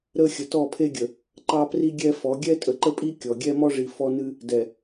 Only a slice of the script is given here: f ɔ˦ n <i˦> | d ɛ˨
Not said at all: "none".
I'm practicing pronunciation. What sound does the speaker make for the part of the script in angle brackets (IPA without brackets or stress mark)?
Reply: ɨ˦